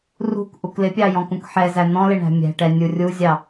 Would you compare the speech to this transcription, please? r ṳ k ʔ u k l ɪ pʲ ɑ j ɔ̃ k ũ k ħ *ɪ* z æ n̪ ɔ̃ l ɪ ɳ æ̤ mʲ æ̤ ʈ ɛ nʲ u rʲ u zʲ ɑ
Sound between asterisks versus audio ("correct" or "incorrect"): incorrect